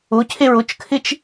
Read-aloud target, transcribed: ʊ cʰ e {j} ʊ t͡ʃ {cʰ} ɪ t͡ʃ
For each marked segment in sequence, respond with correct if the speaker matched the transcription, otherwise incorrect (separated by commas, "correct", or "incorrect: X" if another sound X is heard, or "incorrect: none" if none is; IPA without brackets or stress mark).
incorrect: ɹ, incorrect: kʰ